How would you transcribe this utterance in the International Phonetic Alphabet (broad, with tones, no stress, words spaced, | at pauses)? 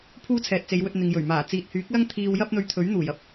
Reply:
pʰuː˥t͡sʰɛː˨t̚t͡se˨˧jwɵ˧t̚ n̪ɪ˨ŋjɵ˨˩ɥmaː˨˩ t͡siː˨t̚hyː˨˥k̚lɐ˥ŋt̪ʰiː˧w jɐ˥p̚n̪ɵ˧ɥt̪ʰɵ˨˥ɥn̪uː˨˩j ɐ˥p̚